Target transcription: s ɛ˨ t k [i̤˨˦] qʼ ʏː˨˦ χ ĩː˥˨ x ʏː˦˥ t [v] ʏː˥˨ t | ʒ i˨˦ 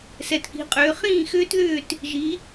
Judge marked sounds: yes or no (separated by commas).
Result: yes, no